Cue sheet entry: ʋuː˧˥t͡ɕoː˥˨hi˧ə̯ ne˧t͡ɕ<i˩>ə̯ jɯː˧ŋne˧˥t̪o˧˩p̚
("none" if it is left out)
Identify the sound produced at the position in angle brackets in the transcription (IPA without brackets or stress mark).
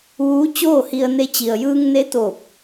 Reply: i˩